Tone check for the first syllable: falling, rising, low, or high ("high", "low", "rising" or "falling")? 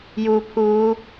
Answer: low